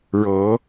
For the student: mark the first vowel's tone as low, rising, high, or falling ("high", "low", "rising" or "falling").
rising